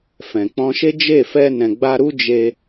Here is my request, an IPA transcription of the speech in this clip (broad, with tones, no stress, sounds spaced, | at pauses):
f ɛ̃˨ k͡p ɔ̃˧ ʃ e˦ d͡ʒ e˦˨ f ɛ˧ n ɛ̃˨ ɡ͡b a˧ ɾ u˦ d͡ʒ e˦